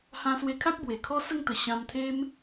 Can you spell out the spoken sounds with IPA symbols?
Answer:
hã˧swe˧kʰa˦k̚ bwe˨˩kʰɔ˦sə˥˧ŋt̪ə˨˩ ɕã˧mt̪ʰe˦m

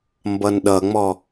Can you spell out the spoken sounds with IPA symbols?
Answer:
mbʌnɗʌŋ͡mɔ

